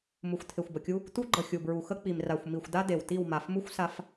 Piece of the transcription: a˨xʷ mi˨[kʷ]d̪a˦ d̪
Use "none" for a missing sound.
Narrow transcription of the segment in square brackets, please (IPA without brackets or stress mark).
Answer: xʷ